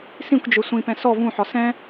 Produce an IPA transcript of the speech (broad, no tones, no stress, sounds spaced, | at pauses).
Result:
s ĩ kʷ d͡ʒ ø sʷ ĩ p ɛ̃ s ɔ v ũ ħ ɒ s ɛ̃